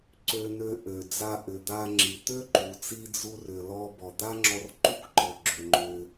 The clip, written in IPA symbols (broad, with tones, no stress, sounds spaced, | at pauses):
ǀ ø˧ n ø˧ ʔ ø˩ d͡z a˧ ʔ ʏ˩ d̪ a˧ ŋ͡ǁ i˩ t̪ ø˥ ǃ u˩ t͡s i˧ d͡z u˧ r ʏ˩ l ɔ˧ b ɔ˩ d̪ a˥ ŋ͡ǁ ɔ˧ r ǃ u˥ k ǃ ɔ˩ ɡ͡ǁ ø˩ ŋ͡ǃ ʏ˩